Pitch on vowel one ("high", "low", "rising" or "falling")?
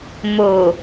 low